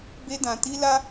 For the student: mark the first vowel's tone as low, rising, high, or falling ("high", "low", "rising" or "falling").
high